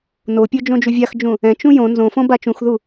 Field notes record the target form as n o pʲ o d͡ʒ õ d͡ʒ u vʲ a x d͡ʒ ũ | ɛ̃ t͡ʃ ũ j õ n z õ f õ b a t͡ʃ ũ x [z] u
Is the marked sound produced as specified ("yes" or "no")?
no